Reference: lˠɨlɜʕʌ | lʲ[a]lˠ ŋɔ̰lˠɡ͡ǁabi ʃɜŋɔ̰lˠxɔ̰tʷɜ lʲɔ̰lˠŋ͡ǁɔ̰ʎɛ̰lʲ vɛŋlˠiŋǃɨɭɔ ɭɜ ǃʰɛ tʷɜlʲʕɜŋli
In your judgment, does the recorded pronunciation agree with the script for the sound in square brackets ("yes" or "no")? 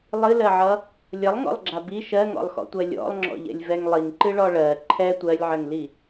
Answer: no